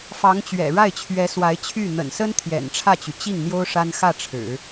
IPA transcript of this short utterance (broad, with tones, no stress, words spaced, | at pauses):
fɑ˧˥ŋt͡ɕɥɛ̰˨˩ ɻa˥˩ɪ̯t͡ɕʰɥɛ˧˥swa˧˥ɪ̯t͡ɕʰy˥˩ n̪ə̰˨˩nsə˥n t̪ʰjɛ̰˨˩nʈ͡ʂʰä˥˩t͡ɕy˩ t͡ɕi˥˩ŋn̪jo˥ʊ̯ ʂa˥n xä˥˩ ʈ͡ʂʰɻ̩˨˩˦